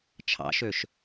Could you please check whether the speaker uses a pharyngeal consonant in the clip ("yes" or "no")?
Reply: no